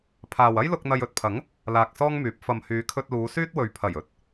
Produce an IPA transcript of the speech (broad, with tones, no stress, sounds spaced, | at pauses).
pʰ aː˨ w ɐ˥ j l ʊ˧ k̚ n̪ ɐ˧ j ɵ˧ t̚ pʰ ɐ˨˥ ŋ | l aː˧ k̚ s ɔː˥ ŋ m yː˨˥ p̚ f ɐ˨ m h yː˨˧ kʰ ɵ˧ t̚ l uː˨˧ s yː˥ t̚ w ɵ˨ ɥ pʰ ɐ˨˩ j ɵ˨˥ t̚